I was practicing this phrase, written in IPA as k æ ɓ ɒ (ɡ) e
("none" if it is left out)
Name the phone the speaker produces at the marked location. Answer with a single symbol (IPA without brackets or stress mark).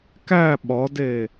d